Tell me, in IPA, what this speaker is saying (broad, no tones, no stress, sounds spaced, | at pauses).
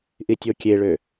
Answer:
ʔ i tʲ o kʲ e ɭ ø